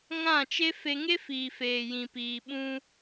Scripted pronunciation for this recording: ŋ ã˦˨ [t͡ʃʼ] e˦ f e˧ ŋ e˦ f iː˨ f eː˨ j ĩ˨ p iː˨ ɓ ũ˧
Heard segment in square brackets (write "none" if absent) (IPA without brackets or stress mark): t͡ʃ